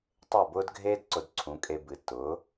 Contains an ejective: yes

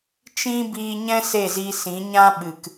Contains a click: no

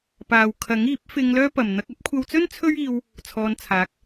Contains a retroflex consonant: no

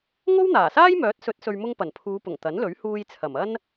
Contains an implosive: no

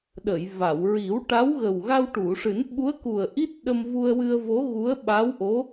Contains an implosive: yes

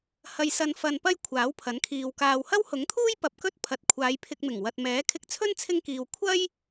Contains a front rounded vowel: no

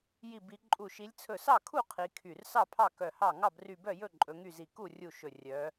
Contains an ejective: yes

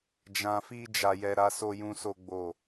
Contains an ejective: no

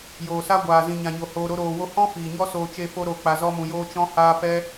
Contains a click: no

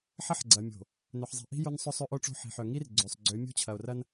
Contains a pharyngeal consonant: yes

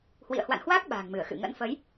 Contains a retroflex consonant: no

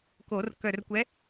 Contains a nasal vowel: no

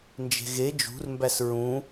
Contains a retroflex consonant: no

